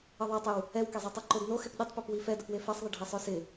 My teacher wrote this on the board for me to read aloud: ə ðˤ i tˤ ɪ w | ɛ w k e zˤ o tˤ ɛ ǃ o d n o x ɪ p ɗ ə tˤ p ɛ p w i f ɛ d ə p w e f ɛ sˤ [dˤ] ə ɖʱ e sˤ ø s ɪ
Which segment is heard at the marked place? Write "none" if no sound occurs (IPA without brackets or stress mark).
ðˤ